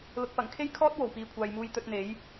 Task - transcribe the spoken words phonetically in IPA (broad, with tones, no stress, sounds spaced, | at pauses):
l ʊ˨ k̚ p ɐ˨˩ ŋ kʰ e˥ j kʰ ɔː˥ t̚ w o˨˩ w p iː˨ kʷʰ aː˨ j m uː˧ j t̪ ɵ˧ t̚ n̪ e˨˥ j